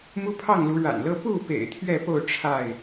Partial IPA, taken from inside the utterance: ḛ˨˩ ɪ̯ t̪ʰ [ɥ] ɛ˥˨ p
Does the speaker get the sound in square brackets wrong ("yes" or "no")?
no